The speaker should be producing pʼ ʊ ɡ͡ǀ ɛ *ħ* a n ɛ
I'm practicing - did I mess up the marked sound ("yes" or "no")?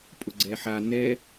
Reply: no